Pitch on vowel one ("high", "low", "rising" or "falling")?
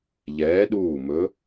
rising